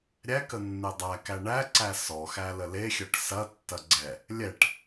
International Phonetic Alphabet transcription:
ɾʲ æ k ə nː e dˤ æ k æ ɳ æ ǀ æ s ɔ x æ l ə l e xʲ ɜ ʈ s ɐ tː ɐ ɡ͡ǀ ɛ | lʲ ɛ ʈ

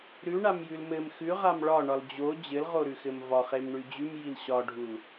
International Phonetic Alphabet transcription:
ɾ ʉ ɳ a m j ʉ l m ɘ m x ʉ ʁ a m ɭ ɒ ɳ ɒ l d͡ʑ o d͡ʑ ɘ l ʁ o ɾ ʉ x ɘ m v ɒ χ e m ɳ ʉ d͡ʑ ʉ m j i l ɕ ɒ ɖʱ u l

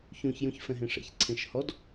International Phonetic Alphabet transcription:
ç ũ ç j ũ ç f ɛ̃ ɦ ẽ ʂ ɛ̰ ç ǀʰ ẽ ʃ h ɔ d

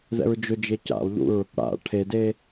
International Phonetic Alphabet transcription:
ð ɛ̰ ɹ d͡ʒ ʊ d͡ʒ e c a̰ lˠ ʎ ṵ ɹ | ɽ a̰ ʈʰ e d e

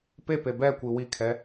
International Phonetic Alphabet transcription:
p e p e b ɛ kʷ i w i kʰ ɛ

